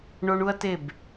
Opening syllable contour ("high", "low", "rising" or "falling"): high